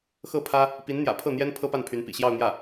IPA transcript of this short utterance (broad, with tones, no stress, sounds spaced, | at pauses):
x ɤ˥˩ pʰ ä˥ | p i˧˥ n n̪ j ä̰˨˩ pʰ ɤ˥˩ n̪ j ɛ˥ n pʰ ɤ˥ p a˥˩ n pʰ y˧˥ n p ḭ˨˩ ɕ j ɑ˥˧ ʊ̯ n̪ j ä˥˩